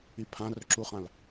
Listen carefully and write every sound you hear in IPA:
i pʰ ã r ɵ ǁ u χ ã l

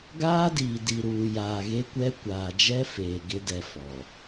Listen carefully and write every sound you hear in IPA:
ɡ aː˦ d iː˨ d i˨ ɾ uː˨ j aː˨ ɣ e˦ kʷ ɛ˦ kʷ aː˨ d͡ʒ ɛ˦ f eː˨ ɡ ɪ˦ d ɛ˨ f ɔ˨

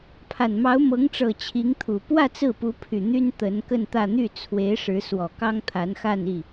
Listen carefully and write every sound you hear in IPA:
pʰ a˨˩ n m ɑ˧˥ ʊ̯ m ɤ˧˥ ŋ ʈ͡ʂ ɤ˨˩ t͡ɕʰ i˧˥ ŋ t̪ʰ u˨˩ p w ä˥˧ t͡s ɹ̩˥˩ p u˧˥ pʰ y˨˩ n̪ y˥ n t̪ ə˧˥ n k ə˥˧ n t̪ ä˥˧ n̪ y˥˩ t͡sʰ w e˧˥ ɪ̯ ʂ ɻ̩˧˥ s w ɔ˨˩ k ɑ˥ ŋ t̪ʰ a˧˥ n x a˥˧ n i˥˩

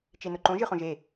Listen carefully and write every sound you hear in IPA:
t͡ʃ e n ʊ ǃ õ ʒ ɨ χ õ ʒ e

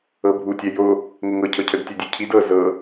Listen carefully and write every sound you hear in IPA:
ɤ bʱ u tʲ ɛ j o | ŋ ə ŋ ɤ cʰ ɤ cʰ ə d tʲ ɛ dʲ e cʰ i d ɤ z ɤ

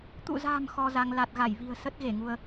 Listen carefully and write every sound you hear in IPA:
t̪ ṵ˧˨ z a̤ː˨˩ m x ɔ˧ z a˧ ŋ l a˨˩ t̚ ɣ a˧˩ j v i̤˨˩ ə̯ s ə˦˥ t̚ ɣ e˧˩ ŋ u˧ ə̯

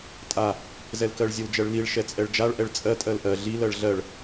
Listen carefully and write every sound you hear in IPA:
tʼ a | z ɛ l k ɜ ɭ zʲ ə l d͡ʒ ɜ ɭ l i ɭ ʃ ɛ t͡sʼ ɛ ɭ d͡ʒ a ɭ ʔ ɛ ɭ t͡sʼ ɜ tʼ ɜ l ʔ ɜ ɮ i l ɜ ɭ ɮ ɜ ɭ

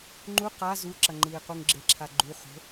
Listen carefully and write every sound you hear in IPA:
ŋ͡ǃ u q a z u ǁ ɐ ŋ͡ǃ ɨː q u ŋ ɡ͡ǁ e ǁʰ a ɡ͡ǃ u χ o̤

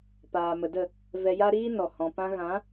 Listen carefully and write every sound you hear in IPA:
p aː˨ m ə˨ d ə˦˨ | v ɛ˧ j a˦ ɾ iː˦ n ɔ˨ h ɔ̃˨ p ã˧ ɣ ã˨˦

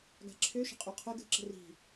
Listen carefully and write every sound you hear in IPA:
ɡ a̤ ǁʰ ø ʃ ə̤ qʼ u qʰ ə ɡ ə̤ ǁ ə̤ r i̤

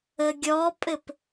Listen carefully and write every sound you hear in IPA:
ə ɡʲ ɔ pʼ ɘ p

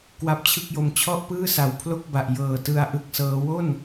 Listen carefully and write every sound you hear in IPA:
k w a˦˥ p̚ t͡ɕʰ ɯ˥˩ k̚ j o˧ m t͡ɕʰ ɔ˥˩ ʔ p ɯː˥˩ s a˨˩ w pʰ l o˥˩ k̚ b a˨˩ ʔ j ɤː˨˩ t ɯ˧ a̯ ʔ ɯ˦˥ k̚ s ɤː˦˥ w o˥˩ n

